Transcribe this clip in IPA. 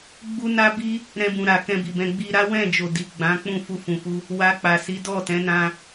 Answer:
ɡ͡bu˦na˦bi˦ | ɾɛ̃˧bũ˨ ɾa˨kɛ̃˧bi˨bɛ̃˧ ɡ͡bi˧ɾa˦wɛ̃˦˨d͡ʒo˨ di˨ɡ͡bã˨˦k͡pũ˦˨ fu˧fũ˨fu˧ | wa˧k͡pa˨ si˨˦ dɔ˦˨tɛ̃˨˦nã˧

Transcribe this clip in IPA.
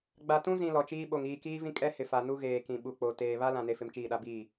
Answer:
ɡ͡ba˨tũ˦zĩ˨ lɔ˨t͡ʃiː˦ɓo˨ŋ iː˨kiː˦vĩ˦ kʼɛ˦hɪ˨fa˨ nu˦ɣeː˨kĩ˨ ɓu˨k͡po˨ teː˨ βa˦ lã˨ne˨fɪ˨m t͡ʃiː˦˨ɗa˦biː˦˨

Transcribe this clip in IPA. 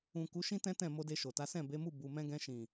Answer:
ũ˨ku˨˦ʃĩ˦ tɛ̃˦tɛ̃˦˨ mo˧de˧ʃo˨ta˨˦ sɛ̃˦˨be˨˦mu˦˨ bu˨mɛ̃˧ɡɛ̃˧ʃĩ˨

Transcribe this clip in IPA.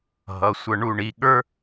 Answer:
ɦʌ˩˧˩sʷʌ˦˨ ɳu˦˨ɳi˩˧˩ɠə˞˥

